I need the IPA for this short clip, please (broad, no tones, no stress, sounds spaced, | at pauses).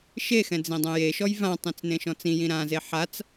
ʃ e x ɛ̃ d͡z ĩ dˤ ɛ̃ j e ʃ ɔ j v ã tˤ ĩ t͡s n ẽ ʃ ɔ̃ t͡s ĩ j ĩ ɾ ã z e ħ a t͡s